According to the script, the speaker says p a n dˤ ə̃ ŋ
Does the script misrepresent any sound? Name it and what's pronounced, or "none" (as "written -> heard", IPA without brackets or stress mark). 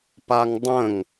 n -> ŋ